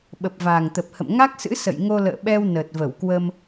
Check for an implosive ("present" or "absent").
present